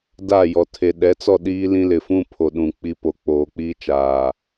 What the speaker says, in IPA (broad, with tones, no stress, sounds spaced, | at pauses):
d a˦˨ j ɔ˨ tʰ e˨ ɗ ɛ˨˦ t͡s ɔ˦˨ ɗ iː˦ l ĩ˦ l ɪ˨ f ũ˦ pʰ o˨ ɗ ũ˨ k͡p i˦ p o˨ k͡p oː˨ k͡p iː˦ t͡ʃ aː˨